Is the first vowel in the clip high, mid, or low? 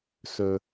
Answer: mid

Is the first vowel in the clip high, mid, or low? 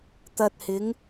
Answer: low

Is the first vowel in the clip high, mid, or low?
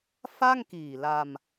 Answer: low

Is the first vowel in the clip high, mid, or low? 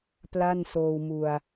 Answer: low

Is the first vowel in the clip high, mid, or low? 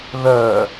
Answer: mid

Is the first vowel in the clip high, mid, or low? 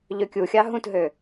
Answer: mid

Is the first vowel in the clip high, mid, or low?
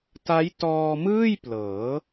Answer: low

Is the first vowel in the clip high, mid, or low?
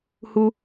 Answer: high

